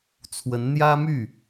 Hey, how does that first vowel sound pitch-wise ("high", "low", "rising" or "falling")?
rising